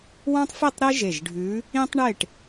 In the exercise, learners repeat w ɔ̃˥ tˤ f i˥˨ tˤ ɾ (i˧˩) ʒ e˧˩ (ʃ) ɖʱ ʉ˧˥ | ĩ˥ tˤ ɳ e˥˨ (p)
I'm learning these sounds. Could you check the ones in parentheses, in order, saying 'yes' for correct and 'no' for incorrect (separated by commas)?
no, no, no